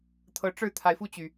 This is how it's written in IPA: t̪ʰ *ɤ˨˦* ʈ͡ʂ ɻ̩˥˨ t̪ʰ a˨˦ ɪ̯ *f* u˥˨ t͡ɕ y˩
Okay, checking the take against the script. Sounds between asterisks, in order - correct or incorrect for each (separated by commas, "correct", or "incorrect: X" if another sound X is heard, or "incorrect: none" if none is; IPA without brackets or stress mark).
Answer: correct, correct